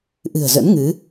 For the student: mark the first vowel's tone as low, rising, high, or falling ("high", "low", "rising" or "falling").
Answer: low